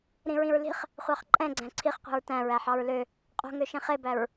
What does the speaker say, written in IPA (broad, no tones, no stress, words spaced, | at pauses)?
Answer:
ɾĩɹĩɹli̤χ | χʷɑχǃʼɛ̃ɡ͡ǀæ̃ ǀʰiχqʷi̤ɹ tæ̃ɹæħɑɹ lø | qʼo̤ŋøʃĩ χebæɹ